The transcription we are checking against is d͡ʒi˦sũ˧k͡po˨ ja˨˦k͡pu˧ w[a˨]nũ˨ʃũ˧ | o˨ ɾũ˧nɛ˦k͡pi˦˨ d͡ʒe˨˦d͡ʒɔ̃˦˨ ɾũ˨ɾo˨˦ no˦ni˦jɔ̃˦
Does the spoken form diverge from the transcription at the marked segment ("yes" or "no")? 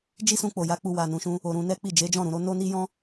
no